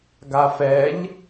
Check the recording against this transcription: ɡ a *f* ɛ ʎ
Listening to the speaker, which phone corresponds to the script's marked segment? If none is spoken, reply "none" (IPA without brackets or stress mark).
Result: f